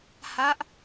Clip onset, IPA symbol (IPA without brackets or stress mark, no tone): h